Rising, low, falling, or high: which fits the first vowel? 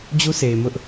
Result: high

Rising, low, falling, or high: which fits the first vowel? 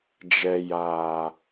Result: low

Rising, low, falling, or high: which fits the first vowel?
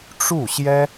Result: falling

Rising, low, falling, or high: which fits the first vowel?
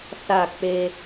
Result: falling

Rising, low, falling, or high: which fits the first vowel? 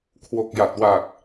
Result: low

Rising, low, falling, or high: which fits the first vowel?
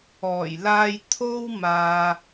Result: low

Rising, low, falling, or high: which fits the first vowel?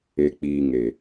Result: low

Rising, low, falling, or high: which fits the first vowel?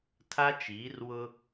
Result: high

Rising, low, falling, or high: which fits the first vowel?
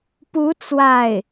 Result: rising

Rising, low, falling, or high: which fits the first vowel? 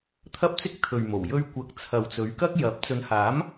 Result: high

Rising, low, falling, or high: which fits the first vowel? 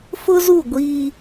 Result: high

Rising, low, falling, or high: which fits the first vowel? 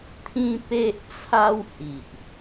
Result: high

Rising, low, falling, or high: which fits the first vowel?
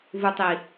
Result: low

